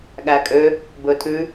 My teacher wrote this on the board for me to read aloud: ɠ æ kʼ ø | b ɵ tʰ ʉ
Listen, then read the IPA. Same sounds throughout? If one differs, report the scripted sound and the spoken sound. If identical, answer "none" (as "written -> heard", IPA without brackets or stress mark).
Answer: none